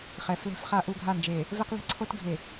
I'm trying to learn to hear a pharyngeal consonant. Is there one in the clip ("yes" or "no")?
no